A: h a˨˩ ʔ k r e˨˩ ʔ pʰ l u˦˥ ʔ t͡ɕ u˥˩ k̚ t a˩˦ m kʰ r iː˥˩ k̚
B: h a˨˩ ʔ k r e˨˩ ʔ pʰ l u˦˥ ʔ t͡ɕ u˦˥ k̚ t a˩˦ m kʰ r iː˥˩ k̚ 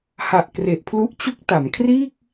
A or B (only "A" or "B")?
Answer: B